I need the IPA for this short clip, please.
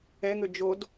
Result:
ɛ ŋ ø d͡ʒ o d

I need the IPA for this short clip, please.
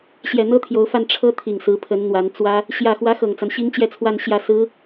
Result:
ɕ j ɛ˨˩ n̪ ɤ˥ t̪ʰ j o˧˥ ʊ̯ f a˥˩ n ʈ͡ʂʰ ɤ˥ t̪ʰ i˨˩ ŋ s ɹ̩˧˥ pʰ ə˧˥ n n̪ w a˧˥ n t͡s w ä˥ | ɕ j ä˨˩ x w ä˧˥ x ɤ˨˩ ŋ t͡s a˦ n ɕ i˥ ŋ t͡ɕ j ɛ˥˧ t͡sʰ w a˥˧ n ɕ j ä˥˩ s ɹ̩˥

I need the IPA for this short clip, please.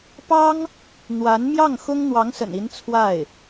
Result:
p ɑ˥ ŋ | n̪ w a˧˥ n m j ɑ˥˩ ŋ x ʊ˥ ŋ n̪ w ɑ˧˥ ŋ s ə̰˨˩ n i˧˥ n t͡sʰ w a˥˩ ɪ̯

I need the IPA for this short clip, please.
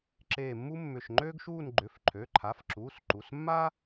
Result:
ǁ eː˧˩ mː u˥ mː ʏ˧˩ ʃ ŋ͡ǃ øː˥ ɡ ʃ uː˥˧ n ɡ͡ǃ ʏ˩˧˩ f ǃʰ ø˩˧˩ ǃʰ a˩˧˩ f ǁ uː˩˧˩ s ǃ u˩˧˩ s mː a˥

